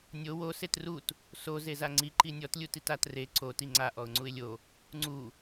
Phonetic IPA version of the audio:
nʲ o w o s e t r u t | s o z e z a ŋ͡ǀ i ǃ i nʲ ɔ t lʲ u t i t a t r e ǀ o t i ŋ͡ǀ a ʔ ɔ ʊ̯ ŋ͡ǀ u ɪ̯ lʲ o | ŋ͡ǀ u

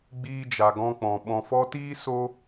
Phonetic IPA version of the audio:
ɡ͡b iː˧ d͡ʒ a˨ ɡ ɔ̃˧ k͡p ɔ̃˨ ɓ ɔ̃˨ f ɔ˧ t iː˦ s o˦

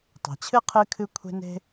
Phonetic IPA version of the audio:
tˤ e̤˩ t͡ɕʰ ɨ˥ qʰ ɨ˧ kʰ ɨ˧ kʷʰ e̤˧ n e̤˧

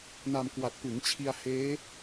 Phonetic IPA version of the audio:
n a˧ m k w a˨˩ t̚ p ɯ˩˦ ŋ t͡ɕʰ i˧ a̯ h eː˦˥

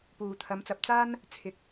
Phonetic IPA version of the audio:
p uː˨ t̪ʰ ɐ˨˧ m t͡s ɐ˨˥ p̚ t͡s aː˥ n | t͡sʰ ɪ˨˥ k̚

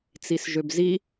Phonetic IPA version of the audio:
t͡s i s ʒ ø b z i

